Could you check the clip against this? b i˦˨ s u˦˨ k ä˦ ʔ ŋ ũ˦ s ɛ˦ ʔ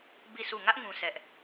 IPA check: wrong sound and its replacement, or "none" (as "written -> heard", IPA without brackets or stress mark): k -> ŋ